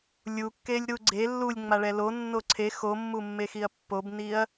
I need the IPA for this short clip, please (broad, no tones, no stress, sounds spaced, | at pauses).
lʲ u kː e lʲ ɾ u ɡ͡ǀ e lː u lʲ ŋ͡m a ɭ ɛ l o nː o ǀʰ e x o mː u mː e x i ɐ̯ pː o b n i ɐ̯